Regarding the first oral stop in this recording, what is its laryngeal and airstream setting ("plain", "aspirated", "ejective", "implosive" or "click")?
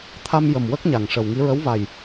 aspirated